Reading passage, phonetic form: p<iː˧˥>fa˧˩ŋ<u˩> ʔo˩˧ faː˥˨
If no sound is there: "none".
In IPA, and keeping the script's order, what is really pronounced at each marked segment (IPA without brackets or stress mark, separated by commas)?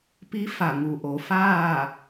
i˧˥, u˩